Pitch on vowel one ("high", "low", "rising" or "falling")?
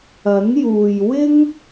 rising